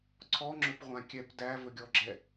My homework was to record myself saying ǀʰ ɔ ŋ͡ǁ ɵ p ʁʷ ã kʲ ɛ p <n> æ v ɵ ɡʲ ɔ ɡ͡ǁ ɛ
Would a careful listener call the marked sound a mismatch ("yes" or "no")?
yes